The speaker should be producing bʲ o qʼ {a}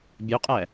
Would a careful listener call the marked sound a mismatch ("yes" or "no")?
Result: yes